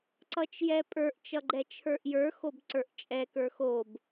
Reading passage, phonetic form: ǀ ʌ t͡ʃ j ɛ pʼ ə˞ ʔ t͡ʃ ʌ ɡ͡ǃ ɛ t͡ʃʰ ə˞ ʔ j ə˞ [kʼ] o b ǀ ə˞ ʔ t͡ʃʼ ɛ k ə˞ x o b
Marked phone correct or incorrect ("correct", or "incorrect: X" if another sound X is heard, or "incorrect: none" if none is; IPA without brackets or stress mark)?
incorrect: x